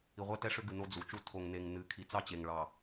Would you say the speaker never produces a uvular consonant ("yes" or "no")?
no